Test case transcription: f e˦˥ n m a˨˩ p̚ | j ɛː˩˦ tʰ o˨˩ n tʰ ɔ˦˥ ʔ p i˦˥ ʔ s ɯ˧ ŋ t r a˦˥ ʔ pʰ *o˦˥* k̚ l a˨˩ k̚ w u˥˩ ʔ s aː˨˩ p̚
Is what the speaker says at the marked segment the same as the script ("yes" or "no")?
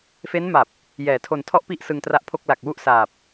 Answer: no